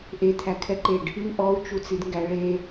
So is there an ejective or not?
no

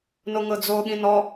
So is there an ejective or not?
no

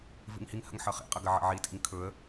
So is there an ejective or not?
yes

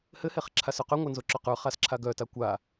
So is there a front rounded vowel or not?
yes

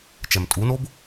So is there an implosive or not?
no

